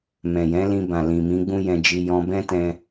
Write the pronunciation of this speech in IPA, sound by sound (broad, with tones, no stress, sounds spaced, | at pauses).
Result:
m ɛ̃˨ j ɛ̃˨˦ l ĩ˧ b ã˨ l ĩ˨ m ĩ˨˦ ɡ͡b ũ˦ j ɛ̃˧ d͡ʒ i˧ j ɔ̃˧ b ɛ̃˦ t ɛ̃˧